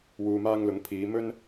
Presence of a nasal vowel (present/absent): absent